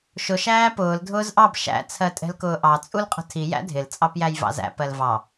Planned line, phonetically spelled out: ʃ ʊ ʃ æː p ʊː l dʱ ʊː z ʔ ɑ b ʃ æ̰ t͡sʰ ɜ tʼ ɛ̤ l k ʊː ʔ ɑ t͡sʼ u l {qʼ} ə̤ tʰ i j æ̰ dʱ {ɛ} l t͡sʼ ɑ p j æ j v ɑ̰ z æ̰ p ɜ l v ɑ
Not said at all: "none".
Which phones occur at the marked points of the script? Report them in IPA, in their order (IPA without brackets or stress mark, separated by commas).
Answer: qʼ, ɪ